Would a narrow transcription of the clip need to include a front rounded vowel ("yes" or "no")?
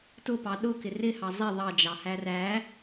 no